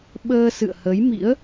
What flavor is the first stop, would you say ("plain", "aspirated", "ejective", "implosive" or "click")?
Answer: implosive